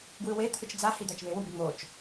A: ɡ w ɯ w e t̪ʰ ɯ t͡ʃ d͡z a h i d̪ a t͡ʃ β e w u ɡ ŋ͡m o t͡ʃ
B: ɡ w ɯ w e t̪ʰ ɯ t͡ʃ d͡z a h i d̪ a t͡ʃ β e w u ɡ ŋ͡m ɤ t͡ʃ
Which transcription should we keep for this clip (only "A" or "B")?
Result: A